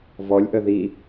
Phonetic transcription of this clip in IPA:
v ɔ lʲ ʔ ə ð i

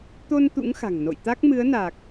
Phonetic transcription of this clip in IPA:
t̪ o˧ n t̪ ṵ˧˥ ŋ x a̤˨˩ ŋ n o̰˧˨ j t̪ a˦˥ k̚ m ɨ˨˦ ə̯ n a˨˩ k̚

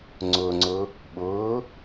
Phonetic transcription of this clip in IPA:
ŋ͡ǀ ʊ ŋ͡ǀ ʊ | ɓ ʊː

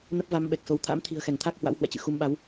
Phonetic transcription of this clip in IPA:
n ə˦˥ p̚ v a˨˦ m ɓ ɛ˨˩ k̚ s o˨˦ w t̪ʰ a̰˧˥ m t̪ʰ i̤˨˩ ə̯ x ɛ˧˩ ŋ t̪ʰ a˦˥ k̚ h w a̰˧˥ w h w ɛ̰˧˨ t͡ɕ ɨ̰˧˨ x u˨˦ m ɓ a˨˦ w

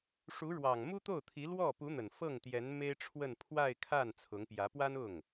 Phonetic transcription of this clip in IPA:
ʂ u˧˥ ɻ w ɑ˨˩ ŋ m u˥ t̪ o˥˩ ʊ̯ t̪ʰ i˧˥ l w ɔ˥˩ p u˧˥ n̪ ə˨˩ n f ɤ˥˩ ŋ t̪ j ɛ˧˥ n m e˥ ɪ̯ ʈ͡ʂʰ w ə˥˧ n pʰ w a˥˧ ɪ̯ kʰ a˥˩ n t͡sʰ ʊ˧˥ ŋ p j ä˧˥ p w a˥ n ʊ˥˩ ŋ

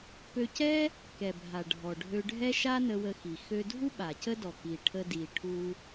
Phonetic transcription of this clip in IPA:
p ø˧ c ɛ˥ | k ɛ˩ bʱ a˩ ɖʱ ɔ˩ ɖʱ ø˧ ɖʱ ɛ˥ ʃ a˥ n ə˧ w ə˧ x i˩ x ø˧ dʱ u˥ ɓ a˩ c ə˥ d ɔ˩ k i˩ ʈʰ ə˧ d i˩ ʈʰ u˧

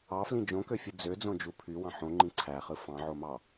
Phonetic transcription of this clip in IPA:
ɑ f l ĩ d͡ʒ õ k ø fʲ ɯ d͡z ø d͡z õ d͡ʒ u pʰ y w ɑ̃ ħ õ ŋ͡ǃ ĩ ǀʰ æ χ ɯ f ɑ̃ ʕ o m ɑ

